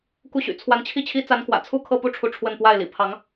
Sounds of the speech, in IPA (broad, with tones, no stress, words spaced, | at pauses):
ku˥˩ɕy̰˨˩ t͡sʰwa˧˥nt͡ɕʰi˥˩t͡ɕʰi˥ t͡sa˧˥nkwä̰˨˩ t͡sʰu˥˧kʰɤ˥˧pu˥˩ʈ͡ʂʰu˧˥ ʈ͡ʂʰwə˥˧n pwa˥˩ɪ̯lḭ˨˩ pʰɑ˧˥ŋ